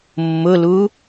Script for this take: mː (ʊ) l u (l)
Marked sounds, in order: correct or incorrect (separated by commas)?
correct, incorrect